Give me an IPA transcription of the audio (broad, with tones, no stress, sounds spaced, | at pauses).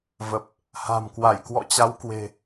v ə˨˩ p̚ | h a̤˨˩ m k w a˧˩ j k w ɔ̰˧˨ t͡ɕ a˨˦ w k w e̤˨˩